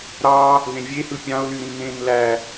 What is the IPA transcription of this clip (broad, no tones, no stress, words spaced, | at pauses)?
ɾɑ | ðẽvʲehɯ pʲɑ̃ʊ̯lyɾĩ nẽn læ